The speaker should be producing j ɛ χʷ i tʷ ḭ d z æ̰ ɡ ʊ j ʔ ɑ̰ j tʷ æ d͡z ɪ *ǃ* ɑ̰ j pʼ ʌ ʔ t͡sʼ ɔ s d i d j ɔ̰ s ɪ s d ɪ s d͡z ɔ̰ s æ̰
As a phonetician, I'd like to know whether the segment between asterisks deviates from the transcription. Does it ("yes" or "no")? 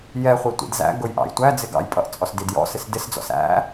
yes